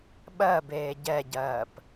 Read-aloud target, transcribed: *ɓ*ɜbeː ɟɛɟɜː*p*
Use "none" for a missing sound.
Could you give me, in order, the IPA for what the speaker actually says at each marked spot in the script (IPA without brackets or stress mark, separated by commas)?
ɓ, p